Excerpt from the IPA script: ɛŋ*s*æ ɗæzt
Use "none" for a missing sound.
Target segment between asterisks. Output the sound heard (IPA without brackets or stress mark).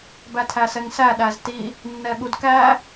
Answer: s